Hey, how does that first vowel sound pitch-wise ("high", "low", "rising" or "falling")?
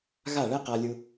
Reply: falling